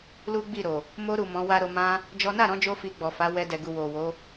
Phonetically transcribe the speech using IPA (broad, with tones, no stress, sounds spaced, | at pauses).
l u˦ ɡ͡b i˦˨ ɾ o˨ | m o˧ ɾ u˨ m ɔ̃˨˦ w a˦ ɾ o˧ m ã˧ | d͡ʒ ɔ˦ n a˦˨ ɾ ɔ̃˨˦ d͡ʒ o˧ f i˧ ɡ͡b ɔ˨ f a˨˦ w ɛ˧ d ɛ˨ ɡ u˨ w o˨ w o˨˦